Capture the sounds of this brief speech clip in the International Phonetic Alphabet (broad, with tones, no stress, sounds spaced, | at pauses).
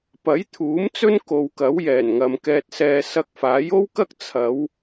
p ɐ˨˥ j t̪ʰ uː˨˥ m t͡s ɵ˥ n k o˨ w k ɐ˨˥ w j ɛː˨˩ n ŋ ɐ˨ m k ɛː˧ t̚ s ɛː˧ s ɐ˧ k̚ f aː˨˥ j o˥ w k ɐ˥ k̚ t͡sʰ ɐ˨˧ w